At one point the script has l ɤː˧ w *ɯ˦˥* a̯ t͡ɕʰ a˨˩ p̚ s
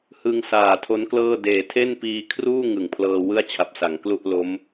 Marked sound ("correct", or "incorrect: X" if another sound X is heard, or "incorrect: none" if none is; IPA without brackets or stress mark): incorrect: ɯ˥˩